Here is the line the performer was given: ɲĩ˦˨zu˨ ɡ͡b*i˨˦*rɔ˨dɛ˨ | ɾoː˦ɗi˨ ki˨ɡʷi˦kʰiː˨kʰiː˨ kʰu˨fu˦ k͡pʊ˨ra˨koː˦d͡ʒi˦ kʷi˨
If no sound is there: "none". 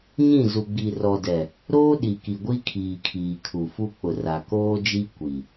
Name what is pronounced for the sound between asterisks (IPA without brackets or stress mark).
i˨